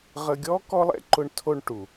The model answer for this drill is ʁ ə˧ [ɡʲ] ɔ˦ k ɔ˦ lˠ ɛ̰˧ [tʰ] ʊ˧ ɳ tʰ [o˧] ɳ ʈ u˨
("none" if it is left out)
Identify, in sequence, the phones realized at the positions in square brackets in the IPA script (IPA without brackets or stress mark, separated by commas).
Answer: ɡʲ, ǃ, o˧